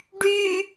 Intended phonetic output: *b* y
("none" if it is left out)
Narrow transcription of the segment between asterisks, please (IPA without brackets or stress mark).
ɖ